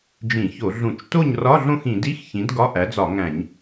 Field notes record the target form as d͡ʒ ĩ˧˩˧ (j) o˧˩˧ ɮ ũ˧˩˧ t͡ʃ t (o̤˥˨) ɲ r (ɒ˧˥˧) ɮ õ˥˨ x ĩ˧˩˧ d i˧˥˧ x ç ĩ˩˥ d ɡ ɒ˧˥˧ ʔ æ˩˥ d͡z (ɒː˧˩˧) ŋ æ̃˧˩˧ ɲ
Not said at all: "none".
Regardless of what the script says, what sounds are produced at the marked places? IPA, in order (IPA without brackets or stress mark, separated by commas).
ç, o˥˨, ɒ˧˥˧, ɒ˧˩˧